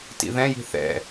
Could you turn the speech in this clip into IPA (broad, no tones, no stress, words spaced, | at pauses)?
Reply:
tḭðɛ̃ji̤ θɛ̰